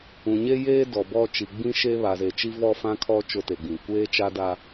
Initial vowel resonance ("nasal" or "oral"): nasal